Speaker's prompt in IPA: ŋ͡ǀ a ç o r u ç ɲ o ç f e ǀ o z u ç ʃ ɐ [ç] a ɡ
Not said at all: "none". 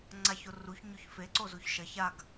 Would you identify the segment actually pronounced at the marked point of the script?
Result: ç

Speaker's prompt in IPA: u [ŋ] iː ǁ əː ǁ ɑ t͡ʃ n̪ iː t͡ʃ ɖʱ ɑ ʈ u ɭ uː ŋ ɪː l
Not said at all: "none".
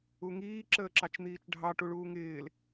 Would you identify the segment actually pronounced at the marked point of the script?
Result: ŋ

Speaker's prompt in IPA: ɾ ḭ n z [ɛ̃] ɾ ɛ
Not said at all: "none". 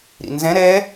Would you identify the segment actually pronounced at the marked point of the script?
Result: ɛ̃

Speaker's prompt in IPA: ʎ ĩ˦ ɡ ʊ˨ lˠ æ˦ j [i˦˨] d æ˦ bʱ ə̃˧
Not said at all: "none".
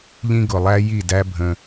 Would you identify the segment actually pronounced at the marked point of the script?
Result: i˦˨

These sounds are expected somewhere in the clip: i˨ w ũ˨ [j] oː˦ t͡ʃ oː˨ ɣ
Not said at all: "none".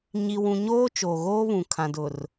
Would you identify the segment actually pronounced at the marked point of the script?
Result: ɲ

